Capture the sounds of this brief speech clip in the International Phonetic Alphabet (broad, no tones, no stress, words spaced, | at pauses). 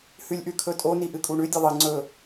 hʉlʲʔʉkʰɵtʼo niʔɨkʼuɳʉ dʲɐðˤɨ ŋ͡ǀɵ